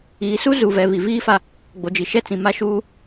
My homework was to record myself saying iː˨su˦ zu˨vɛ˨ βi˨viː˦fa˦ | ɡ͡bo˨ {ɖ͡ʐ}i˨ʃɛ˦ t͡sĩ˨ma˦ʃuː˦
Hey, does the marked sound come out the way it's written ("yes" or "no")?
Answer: no